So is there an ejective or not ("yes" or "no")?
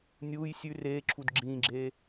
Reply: no